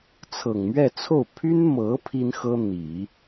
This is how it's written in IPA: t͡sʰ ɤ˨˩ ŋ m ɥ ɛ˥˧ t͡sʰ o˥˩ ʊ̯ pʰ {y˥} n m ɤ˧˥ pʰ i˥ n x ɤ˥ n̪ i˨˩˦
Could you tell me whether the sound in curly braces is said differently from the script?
no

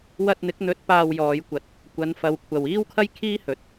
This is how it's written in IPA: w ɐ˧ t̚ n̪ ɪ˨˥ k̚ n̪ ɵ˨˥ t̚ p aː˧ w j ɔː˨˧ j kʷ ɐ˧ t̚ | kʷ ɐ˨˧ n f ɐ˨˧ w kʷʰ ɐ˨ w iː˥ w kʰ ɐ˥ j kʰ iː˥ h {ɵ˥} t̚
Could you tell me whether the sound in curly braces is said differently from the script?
yes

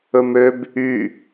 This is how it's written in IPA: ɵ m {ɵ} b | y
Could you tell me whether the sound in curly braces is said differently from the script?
yes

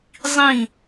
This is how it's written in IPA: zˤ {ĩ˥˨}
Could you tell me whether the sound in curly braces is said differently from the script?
no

